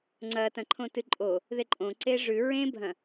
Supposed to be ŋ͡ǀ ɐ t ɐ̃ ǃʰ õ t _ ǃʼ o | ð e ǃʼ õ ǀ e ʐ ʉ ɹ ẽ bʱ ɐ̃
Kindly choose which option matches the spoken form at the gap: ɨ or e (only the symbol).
ɨ